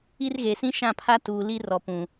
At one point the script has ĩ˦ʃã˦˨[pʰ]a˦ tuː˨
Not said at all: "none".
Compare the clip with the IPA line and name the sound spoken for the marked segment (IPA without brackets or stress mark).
pʰ